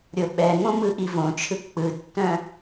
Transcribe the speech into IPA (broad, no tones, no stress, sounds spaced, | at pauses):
ɾʲ o ɓ ɛ ŋ õ m ɯ ʔ i v õ t͡ʃʰ ɯ k͡p ɯ tː œ̃